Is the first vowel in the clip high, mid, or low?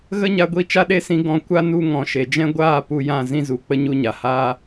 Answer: mid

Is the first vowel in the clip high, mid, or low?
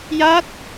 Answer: low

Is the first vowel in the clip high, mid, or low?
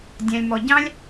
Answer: low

